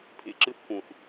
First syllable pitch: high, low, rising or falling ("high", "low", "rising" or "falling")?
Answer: low